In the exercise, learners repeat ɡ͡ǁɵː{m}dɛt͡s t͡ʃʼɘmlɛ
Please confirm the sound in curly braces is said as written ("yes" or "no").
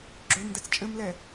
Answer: yes